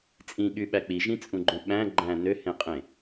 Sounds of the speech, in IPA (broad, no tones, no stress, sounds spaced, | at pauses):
t͡sʼ ĩ ɠ y ɓ æ k͡p i ʒ ĩ t͡sʼ ũ ɡ͡ǃ õ ɓ æ̃ ɡ͡ǃ æ̃ n ø h ẽ qʼ ẽ